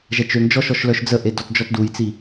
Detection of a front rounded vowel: present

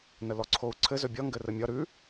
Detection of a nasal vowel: absent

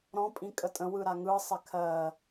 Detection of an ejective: present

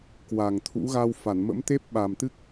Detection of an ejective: absent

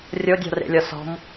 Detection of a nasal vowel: absent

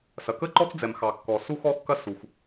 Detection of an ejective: absent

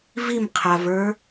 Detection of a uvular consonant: present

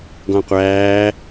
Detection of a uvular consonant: present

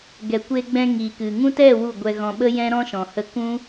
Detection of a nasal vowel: present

